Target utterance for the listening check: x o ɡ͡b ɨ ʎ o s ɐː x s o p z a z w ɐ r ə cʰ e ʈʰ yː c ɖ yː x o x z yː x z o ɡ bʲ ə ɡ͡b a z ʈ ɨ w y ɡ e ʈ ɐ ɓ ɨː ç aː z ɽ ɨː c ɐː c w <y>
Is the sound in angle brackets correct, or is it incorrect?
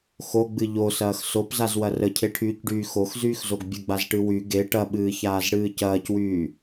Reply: incorrect